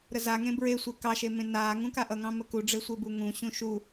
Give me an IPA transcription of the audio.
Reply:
ɾəzaŋẽ bɹesʷe kɑʃe mẽnaːŋũ kaʔʌŋɑ̃ məkuɖ͡ʐe sʷebuŋũɕũ ʃu

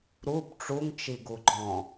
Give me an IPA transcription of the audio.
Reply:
ɾub ʈ͡ʂuŋt͡ʃiɡu ɡ͡ǃɔ̃

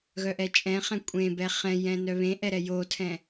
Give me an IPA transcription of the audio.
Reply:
ɣœʔɛt͡ʃʼɛ̃χɛ̃ kʷʼẽbɛ χɛ̃jɛ̃ nœβẽʔɛ ɾɛjotʰɛ̃

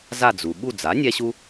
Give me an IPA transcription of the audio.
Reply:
za˦˨d͡zu˩ ɓu˦˨d͡za˩˥ nʲɛ˦ɕu˦

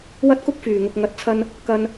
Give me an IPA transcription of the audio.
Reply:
wɐ˥t̚kʊ˥k̚ fyː˨˩ŋʊ˨k̚ ŋɐ˧t̚t͡sʰɐ˥n | kɐ˧n

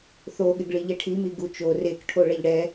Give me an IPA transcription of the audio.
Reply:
θoɠɪɡɭi ʎɛʈʰimi ɡut͡ʃo rekʈʰo ɭɛʎɽɛ

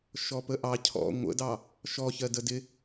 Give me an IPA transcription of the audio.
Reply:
ʃɔpəʔɑ cʰɔ̰ ŋʷə̰dɑ | ʃɔçɜ dədɪ

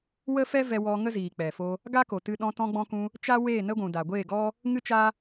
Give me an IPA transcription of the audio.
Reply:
wə˦fɛ˦vɛ˧ wɔ˧ ŋə˦ziː˨k͡pɛ˨fo˧ | ɡa˦ko˨tɨ˧ ɗɔ̃˧tɔ̃˧ɡ͡bɔ̃˧kũ˧ | t͡ʃa˦weː˦˨ nə˦ɡʷũ˨da˨ ɡʷeː˦˨ɡɔ˦ | ŋɨ˦t͡ʃa˦

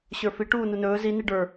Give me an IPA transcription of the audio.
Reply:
ɕə˞fi ʈuːnunɵː zi niɖə˞

